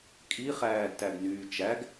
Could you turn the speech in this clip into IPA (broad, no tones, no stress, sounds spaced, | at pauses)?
kʼ i χ æː d t æ ɡ n yː t͡ʃ æ ɡ